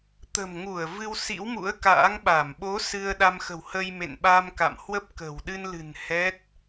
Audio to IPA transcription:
t̪ ə̤˨˩ m ŋ u˧˩ ə̯ v ɨ˧ w s ḭ˧˥ w m ṵ˧˥ ə̯ k a̰ː˧˥ ŋ ɓ a˧˩ m ɓ o˨˦ s ɨ˧ ə̯ ɗ a˧ m x ə̤˨˩ w h ə˧ j m ḛ˧˨ n ɓ a˧ m k a̰˧˨ m h w ə˦˥ p̚ k ə̤˨˩ w ɗ ɨ˧ n l ɨ̤˨˩ n h ɛ˦˥ t̚

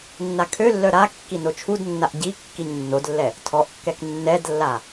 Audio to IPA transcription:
nː a kʰ ø lː œ ɾ a kː i n o t͡ʃʰ u d nː a ʔ ɟ i kː i ɲ nː o d lː ɛ | tʰ ɔ ʔ kː ɛ k nː ɛ d lː a

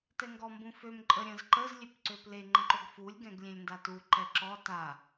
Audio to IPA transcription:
t ɛ ŋ ɡ ɔ m b ũ f ø m ǃʼ ə ɾʲ ə̃ z ǃ ə z lʲ ø p ǀ ø p l e ŋ͡ǃ ə̃ ǃ o ɡ f u lʲ ɡ ɛ̃ ɡ lʲ ẽ lʲ n d a t u ǃ ɛ ǁ ɔ t a

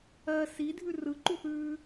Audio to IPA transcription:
ɜ s i dʱ ʉ r ɯ ǃ u θ ʉː

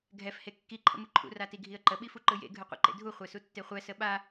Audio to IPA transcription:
ɡʱ ɛ f h e kː i ǃʰ ə̰ m ɯ ǃʰ ṵ r a t i ɡʱ i ə̯ ǃ ə ɓ i f u ǃ ɯ j ḛ ɡʱ ɯ qʷ ḛ ǃ ḛ dʱ u χʷ e s u tː e χʷ ɛ s ə ɓ a

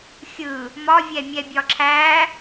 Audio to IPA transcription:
xʲ ɯ | m ɒ vʲ ɛ mʲ ɛ bʲ ɒ ǁʰ æ

